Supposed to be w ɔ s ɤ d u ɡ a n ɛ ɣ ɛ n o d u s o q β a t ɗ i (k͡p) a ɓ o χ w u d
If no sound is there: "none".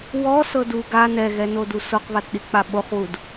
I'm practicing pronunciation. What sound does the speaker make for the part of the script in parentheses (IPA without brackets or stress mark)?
k͡p